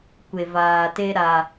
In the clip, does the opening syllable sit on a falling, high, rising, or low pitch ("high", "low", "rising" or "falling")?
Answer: low